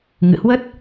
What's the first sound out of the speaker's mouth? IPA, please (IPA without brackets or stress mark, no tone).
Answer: ŋ